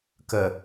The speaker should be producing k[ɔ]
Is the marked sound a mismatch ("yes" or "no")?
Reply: yes